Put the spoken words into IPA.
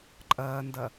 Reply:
ǃʼ ɐː n d ɐ

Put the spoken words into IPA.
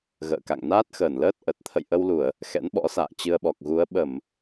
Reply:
ɣ ə̰ː˧˨ k a̰˧˨ ŋ n aː˦˥ t̚ x əː˧˩ n l əː˦˥ t̚ ʔ ə˨˩ t̚ t̪ʰ ə̰˧˨ j ʔ ə˧ w l u˧˩˨ ə̯ | x ɛ̰˧˥ n ɓ ɔ̰˧˥ s a̰ː˧˨ t͡ɕ ɨ˧ ə̯ ɓ ɔ˨˩ k̚ ɣ u˨˦ ə̯ ɓ ə˧˩˨ m

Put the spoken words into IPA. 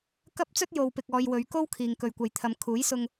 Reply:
k ɐ˥ p̚ t͡s ɵ˥ t̚ j o˨ w p ɪ˨ k̚ ɔː˨ j w ɵ˨˧ ɥ k o˥ w kʰ iː˨ ŋ k ɵ˨ ɥ kʷ ɐ˨ j t̪ʰ ɐ˨˧ m kʰ uː˨˥ j s ʊ˧ ŋ

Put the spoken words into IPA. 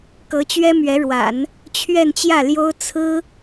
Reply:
k ɤ˧˥ t͡ɕ ɥ ɛ˥ m ɥ ɛ˧˥ ɻ w a̰˨˩˦ n | t͡ɕʰ ɥ ɛ˥˧ n t͡ɕ j ä˥˩ l j o˥ ʊ̯ t͡sʰ ɹ̩˥

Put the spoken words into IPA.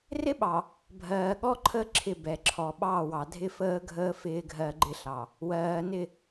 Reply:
r ɪ˦ ɓ ɑ˨ | bʱ ɜː˨ ɠ ɔ˦ ǃʰ ə˦ ǁʰ ɪ˦˨ b ɛ˨ ǁʰ ɔ˨ ɓ ɑ˦˨ w ɑ˨ dʱ ɪ˦ f əː˦ ɡʱ əː˦ f ɪː˦ ɡʱ ɜ˦ ɡ͡ǃ ɪ˦ ɬ ɑ˨ | w ɜː˨ n ɪ˦˨

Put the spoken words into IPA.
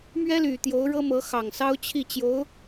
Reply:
m ɥ ɛ˥ l y˨˩ t̪ j o˧˥ ʊ̯ ɻ ɤ˥ m ɤ˧˥ x ɑ˨˩ ŋ s ɑ˥ ʊ̯ t͡ɕʰ i˥˩ t͡ɕ j o˧˥ ʊ̯

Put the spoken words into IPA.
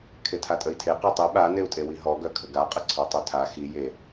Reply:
kʰ e tʰ a tʼ ə i̯ tʰ e q e tˤ i ɓ a n e u̯ tʼ e w i ɦ ɔ ɡ œ kʰ ə ɡ a qʼ ə ǀʰ ɔ tˤ œ tʰ a x i j e

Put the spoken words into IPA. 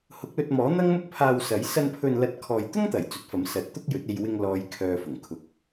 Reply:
h ʊ˨˥ k̚ l ɵ˧ t̚ m ɔː˨˥ n̪ ɐ˥ ŋ m ʊ˥ k̚ pʰ aː˧ w s ɐ˨˥ j s ɐ˧ n pʰ ɵ˨ n l ɐ˨˥ t̚ kʰ ɔː˨ j t̪ ʊ˥ ŋ t̪ ɐ˨˩ j t͡s ɵ˨˥ t̚ f ɐ˨˥ m s ɐ˨˥ t̚ t̪ ʊ˥ k̚ j ɵ˨˥ t̚ e˧ j w ɪ˧ ŋ l ɔː˨˧ j kʰ œː˧ f ʊ˨˩ ŋ kʰ ʊ˨ k̚

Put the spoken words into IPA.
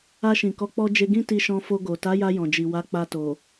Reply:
a˧ ʃ ĩ˨ k ɔ˨˦ k͡p ɔ˧ d͡ʒ e˧ ɡ ĩ˦ t i˧ ʃ ɔ̃˧ f o˧ ɡ o˨ t a˨˦ j a˧ j ɔ̃˨ d͡ʒ i˨ w a˨˦ k͡p a˧ t o˨

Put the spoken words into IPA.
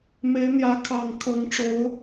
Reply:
m e˨˦ ɪ̯ n̪ j ä˨˦ kʰ ɑ˨˩ ŋ kʰ ɤ˨˦ ŋ ʈ͡ʂ o˨˦ ʊ̯

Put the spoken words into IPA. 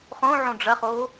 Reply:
χ õ ʕ õ ɖ͡ʐ ɐ χ o

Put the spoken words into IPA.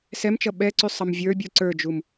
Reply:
s ɛ m t͡ʃ ʌ ɓ ɛ ǀ y sˤ ʌ m vʲ ə˞ bʲ u ǀ ə˞ d͡ʒ u m

